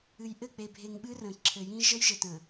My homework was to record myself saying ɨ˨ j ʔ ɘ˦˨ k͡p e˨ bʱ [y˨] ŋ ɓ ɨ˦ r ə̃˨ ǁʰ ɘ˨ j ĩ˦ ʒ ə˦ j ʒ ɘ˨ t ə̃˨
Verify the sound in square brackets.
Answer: incorrect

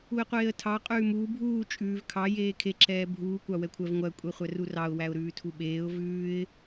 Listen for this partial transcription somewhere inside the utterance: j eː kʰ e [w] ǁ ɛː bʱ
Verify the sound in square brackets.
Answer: incorrect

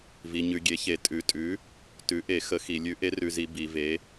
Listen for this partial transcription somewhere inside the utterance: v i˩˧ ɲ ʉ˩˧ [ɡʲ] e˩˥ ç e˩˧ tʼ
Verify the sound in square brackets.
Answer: correct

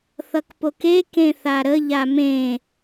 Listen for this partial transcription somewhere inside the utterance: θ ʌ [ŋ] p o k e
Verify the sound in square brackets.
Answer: incorrect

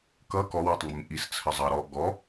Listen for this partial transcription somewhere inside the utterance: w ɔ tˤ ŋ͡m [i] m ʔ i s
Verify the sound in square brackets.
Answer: incorrect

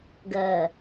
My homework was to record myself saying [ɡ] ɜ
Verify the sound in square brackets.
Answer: correct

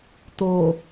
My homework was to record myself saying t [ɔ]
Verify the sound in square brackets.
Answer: incorrect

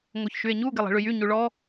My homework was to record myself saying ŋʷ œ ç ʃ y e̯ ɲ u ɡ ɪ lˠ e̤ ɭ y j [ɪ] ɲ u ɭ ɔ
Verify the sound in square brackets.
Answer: incorrect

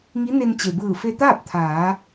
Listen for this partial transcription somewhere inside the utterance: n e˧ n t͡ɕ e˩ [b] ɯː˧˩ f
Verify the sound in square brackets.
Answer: correct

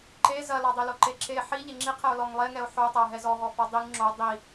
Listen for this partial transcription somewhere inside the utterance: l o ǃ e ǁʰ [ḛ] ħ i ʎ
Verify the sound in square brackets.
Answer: incorrect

